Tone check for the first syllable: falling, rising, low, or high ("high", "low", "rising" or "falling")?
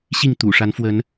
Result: falling